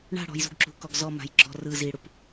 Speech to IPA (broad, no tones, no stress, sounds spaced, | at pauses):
ɳ a̤ ɽ ɔ̤ j z ṳ ɡ ǁ ṳ k ɔ ɡ z ɔ m a̤ j ɡ͡ǁ ɔ̤ r ɯ z i ɽ u p